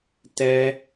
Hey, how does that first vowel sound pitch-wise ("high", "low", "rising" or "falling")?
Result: high